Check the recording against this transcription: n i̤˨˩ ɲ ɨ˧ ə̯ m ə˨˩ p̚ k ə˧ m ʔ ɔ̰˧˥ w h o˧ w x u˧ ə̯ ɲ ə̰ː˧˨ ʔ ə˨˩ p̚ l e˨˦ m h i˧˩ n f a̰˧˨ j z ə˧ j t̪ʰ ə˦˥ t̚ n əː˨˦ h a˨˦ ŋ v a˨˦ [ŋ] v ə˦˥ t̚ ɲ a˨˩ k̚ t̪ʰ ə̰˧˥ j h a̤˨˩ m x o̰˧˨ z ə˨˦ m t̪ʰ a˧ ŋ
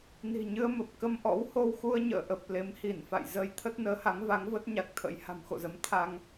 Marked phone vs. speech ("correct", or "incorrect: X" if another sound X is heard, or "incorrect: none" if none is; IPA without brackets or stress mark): correct